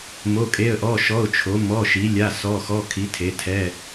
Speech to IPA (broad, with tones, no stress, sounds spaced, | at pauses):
m o˧˥˧ kʼ e˧˥˧ ə̯ ʔ ɔ˧˥˧ ʃ ɔ˧˥˧ ʊ̯ t͡ʃʰ o˨˥ m ɔ˧˥˧ ʃ i˨˥ lʲ a˧˥˧ s ɔ˧˥˧ x ɔ˧˥˧ kʰ i˨˥ tʰ e˨˥ tʰ ɛ˧˥˧